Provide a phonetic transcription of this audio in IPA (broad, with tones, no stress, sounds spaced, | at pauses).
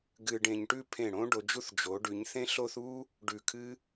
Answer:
ɡ ɨ˧ ɖ ẽ˧ ɲ ʈ ʉ˥˧ pʰ ẽ˧˩ ɽ õ˥ ɖ o˩˧ d͡ʒ u˥˧ θ d͡ʒ o˩˧ ɖ ʉ˩˧ ɲ θ ẽ˥ ɬ o˥ θ u˥ | ɖ ʉ˧˩ kʰ ɨ˥